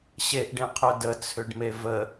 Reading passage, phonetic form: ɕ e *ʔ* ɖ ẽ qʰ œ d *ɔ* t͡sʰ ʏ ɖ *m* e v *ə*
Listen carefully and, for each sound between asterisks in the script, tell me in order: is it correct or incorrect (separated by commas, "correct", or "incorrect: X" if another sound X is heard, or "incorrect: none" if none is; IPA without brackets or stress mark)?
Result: correct, incorrect: ə, correct, correct